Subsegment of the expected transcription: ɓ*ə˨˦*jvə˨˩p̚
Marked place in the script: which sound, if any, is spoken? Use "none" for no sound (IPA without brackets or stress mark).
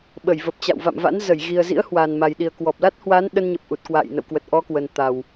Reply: ə˧˩